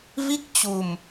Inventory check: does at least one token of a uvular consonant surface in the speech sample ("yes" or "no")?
no